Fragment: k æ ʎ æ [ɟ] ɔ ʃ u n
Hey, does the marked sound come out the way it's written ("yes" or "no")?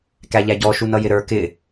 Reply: yes